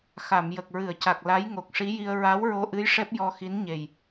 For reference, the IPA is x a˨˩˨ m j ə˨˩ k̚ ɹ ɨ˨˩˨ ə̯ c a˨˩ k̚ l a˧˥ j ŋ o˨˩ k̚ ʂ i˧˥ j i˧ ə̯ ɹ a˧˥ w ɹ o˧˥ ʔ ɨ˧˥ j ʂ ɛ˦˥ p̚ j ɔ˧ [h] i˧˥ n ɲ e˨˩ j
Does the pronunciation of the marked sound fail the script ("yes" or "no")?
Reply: yes